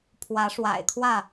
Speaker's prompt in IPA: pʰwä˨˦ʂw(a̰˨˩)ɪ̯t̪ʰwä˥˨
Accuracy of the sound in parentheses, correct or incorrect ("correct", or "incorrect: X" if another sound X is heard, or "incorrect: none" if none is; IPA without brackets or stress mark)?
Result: correct